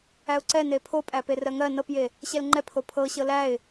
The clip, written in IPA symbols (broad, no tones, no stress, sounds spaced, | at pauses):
æ ʊ̯ ǀ ɛ n e pʰ o pʼ æ p e r ɜ ŋ ɜ n ɤ p j e | ɕ ɛ l ŋ͡ǃ ɛ pʰ o pʰ ɤ ɕ ɤ l æ ɪ̯